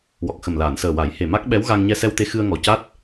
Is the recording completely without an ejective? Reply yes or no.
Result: yes